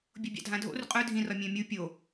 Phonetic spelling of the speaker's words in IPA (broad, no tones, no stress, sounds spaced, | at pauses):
bʲ o bʲ ɑ̰ dʱ ã dʱ o̰ r qʼ œ dʱ ĩ r ɒ mʲ œ̃ mʲ u pʲ o